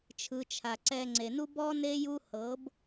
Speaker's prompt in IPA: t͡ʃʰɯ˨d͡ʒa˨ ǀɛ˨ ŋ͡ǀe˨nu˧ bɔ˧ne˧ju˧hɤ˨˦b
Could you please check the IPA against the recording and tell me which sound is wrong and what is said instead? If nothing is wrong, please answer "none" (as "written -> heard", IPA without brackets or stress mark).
d͡ʒ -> t͡ʃʰ